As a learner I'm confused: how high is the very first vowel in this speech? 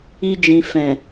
high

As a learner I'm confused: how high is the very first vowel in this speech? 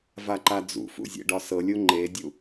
low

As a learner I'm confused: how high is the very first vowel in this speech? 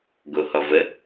mid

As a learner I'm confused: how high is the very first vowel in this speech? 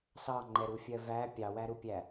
low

